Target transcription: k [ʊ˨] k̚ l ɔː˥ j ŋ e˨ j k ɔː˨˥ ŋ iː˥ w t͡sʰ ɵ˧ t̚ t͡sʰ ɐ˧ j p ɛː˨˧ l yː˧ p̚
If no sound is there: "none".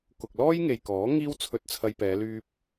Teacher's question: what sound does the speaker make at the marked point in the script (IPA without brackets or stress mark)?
ʊ˨